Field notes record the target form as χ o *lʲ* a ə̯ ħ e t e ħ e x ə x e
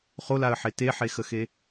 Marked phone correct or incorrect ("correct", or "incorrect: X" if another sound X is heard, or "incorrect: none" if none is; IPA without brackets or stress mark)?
incorrect: l